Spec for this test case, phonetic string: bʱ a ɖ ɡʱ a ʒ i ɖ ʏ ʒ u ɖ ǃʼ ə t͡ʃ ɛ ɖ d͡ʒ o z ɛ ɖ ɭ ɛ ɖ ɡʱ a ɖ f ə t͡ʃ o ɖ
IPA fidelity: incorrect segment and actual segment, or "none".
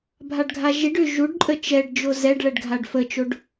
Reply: none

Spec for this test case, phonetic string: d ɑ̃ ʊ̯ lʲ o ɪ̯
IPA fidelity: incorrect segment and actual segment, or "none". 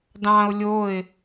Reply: none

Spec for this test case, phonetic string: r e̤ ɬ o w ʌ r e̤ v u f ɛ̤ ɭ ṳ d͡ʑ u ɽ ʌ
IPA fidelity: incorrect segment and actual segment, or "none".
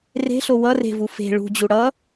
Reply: ɛ̤ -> e̤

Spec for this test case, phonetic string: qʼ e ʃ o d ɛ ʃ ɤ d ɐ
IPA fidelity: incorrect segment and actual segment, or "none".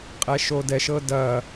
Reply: e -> ɛ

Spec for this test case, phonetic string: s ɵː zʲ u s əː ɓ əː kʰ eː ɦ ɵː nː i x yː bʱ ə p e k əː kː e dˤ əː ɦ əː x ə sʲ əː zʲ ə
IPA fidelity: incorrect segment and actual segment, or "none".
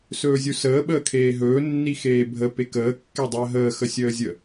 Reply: yː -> eː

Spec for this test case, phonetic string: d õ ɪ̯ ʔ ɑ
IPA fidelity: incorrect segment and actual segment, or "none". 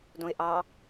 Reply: none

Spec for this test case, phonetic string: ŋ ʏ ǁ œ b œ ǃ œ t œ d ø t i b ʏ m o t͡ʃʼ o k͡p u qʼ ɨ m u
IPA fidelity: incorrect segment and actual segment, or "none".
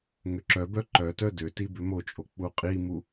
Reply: ɨ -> i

